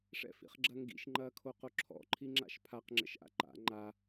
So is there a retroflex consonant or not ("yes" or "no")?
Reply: yes